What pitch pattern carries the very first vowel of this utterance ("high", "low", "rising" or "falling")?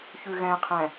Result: low